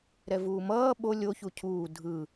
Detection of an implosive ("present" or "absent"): present